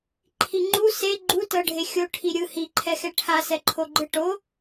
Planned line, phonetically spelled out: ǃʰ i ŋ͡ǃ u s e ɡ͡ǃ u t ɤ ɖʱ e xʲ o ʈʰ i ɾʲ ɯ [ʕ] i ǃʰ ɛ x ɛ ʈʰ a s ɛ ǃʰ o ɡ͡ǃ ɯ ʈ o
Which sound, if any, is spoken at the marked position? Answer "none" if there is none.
h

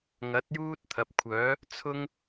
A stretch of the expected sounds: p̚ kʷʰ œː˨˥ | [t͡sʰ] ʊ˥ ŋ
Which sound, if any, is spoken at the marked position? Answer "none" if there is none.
t͡sʰ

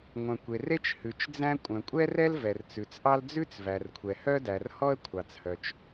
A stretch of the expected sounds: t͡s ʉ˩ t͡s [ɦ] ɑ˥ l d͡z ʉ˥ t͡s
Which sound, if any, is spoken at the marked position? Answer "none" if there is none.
ʔ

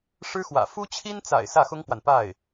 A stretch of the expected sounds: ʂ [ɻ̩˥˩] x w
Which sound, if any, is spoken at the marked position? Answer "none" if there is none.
ɻ̩˥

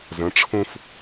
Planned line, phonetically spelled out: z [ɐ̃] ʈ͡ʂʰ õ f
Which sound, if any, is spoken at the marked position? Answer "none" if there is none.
ɐ̃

